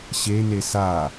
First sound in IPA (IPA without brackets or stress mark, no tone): ɕ